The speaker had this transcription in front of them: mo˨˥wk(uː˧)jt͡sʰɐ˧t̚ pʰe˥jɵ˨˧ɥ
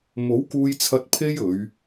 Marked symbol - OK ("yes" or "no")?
yes